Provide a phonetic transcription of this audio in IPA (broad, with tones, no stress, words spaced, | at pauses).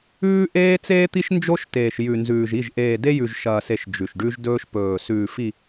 ʉː˦ʔeː˦ t͡seː˦t̪i˦ʃnd͡ʒo˦ʃteː˨ʃ jʉ˨nzʉː˨ʒi˦˨ʒ ʔeː˨de˦ jʉ˨ʒʃɐː˨se˨ʃ d͡ʒʉ˨ʃɖʉ˦ʒdɵː˦ʃ pɵː˨sʉː˨ fi˨